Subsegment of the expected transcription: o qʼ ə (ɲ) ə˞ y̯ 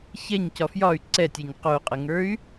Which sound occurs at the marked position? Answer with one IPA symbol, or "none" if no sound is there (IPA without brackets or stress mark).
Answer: ŋ